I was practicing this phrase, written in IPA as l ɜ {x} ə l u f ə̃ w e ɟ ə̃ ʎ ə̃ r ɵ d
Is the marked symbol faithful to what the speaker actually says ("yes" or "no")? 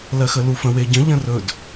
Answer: yes